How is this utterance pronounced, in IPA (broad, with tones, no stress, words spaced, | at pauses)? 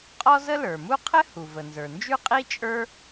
qʼɔ˥zə˥lə˞˩mu˥ qʰɘ˥hu˩ və˩nzə˞˩nd͡ʒʉ˥ qʼi˥t͡ʃʼə˞˥